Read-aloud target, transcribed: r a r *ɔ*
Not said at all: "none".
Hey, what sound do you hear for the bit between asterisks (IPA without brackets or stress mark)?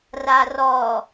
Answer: ɔ